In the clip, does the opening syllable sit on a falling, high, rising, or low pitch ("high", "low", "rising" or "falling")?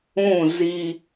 falling